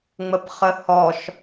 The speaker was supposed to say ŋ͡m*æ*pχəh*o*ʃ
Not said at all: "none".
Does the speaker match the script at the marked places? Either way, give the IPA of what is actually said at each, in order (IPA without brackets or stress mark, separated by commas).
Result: ə, ɔ